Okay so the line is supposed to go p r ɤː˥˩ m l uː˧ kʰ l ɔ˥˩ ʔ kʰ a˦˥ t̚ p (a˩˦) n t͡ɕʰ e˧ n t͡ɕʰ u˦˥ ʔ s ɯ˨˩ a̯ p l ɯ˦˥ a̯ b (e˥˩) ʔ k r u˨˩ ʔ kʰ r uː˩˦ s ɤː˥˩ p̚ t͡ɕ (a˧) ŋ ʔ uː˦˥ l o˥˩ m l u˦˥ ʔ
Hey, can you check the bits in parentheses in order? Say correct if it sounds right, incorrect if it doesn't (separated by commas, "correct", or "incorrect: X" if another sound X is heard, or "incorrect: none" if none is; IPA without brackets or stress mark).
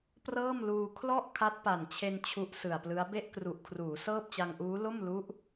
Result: incorrect: a˨˩, correct, correct